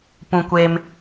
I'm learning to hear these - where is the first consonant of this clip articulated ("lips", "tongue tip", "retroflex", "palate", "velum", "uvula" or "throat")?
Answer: lips